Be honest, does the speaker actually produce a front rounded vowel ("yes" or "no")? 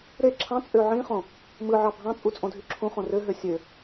yes